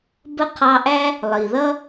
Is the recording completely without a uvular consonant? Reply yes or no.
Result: no